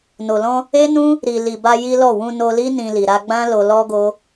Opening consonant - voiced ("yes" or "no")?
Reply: yes